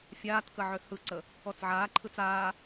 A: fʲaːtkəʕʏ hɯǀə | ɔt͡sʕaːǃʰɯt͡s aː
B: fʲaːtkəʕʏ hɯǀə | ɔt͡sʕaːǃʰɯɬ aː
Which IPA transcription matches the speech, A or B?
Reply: A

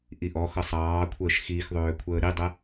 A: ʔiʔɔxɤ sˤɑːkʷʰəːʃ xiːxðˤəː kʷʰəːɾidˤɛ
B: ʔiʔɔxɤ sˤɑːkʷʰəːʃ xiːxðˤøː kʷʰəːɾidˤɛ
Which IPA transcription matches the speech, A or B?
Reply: B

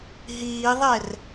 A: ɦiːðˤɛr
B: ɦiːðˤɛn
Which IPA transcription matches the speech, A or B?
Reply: A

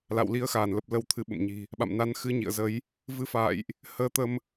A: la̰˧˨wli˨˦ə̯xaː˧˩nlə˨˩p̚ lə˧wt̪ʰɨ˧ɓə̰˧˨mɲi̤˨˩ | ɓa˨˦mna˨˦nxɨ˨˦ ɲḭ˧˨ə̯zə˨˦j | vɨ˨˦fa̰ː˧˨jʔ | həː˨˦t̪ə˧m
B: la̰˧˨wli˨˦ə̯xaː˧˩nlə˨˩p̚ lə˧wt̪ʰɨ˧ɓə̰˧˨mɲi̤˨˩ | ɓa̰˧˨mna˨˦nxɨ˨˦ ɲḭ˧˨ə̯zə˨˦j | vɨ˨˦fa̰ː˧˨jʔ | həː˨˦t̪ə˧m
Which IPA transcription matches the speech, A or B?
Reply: B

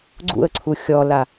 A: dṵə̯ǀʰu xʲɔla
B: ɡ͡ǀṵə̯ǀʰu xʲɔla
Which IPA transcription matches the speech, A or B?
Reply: B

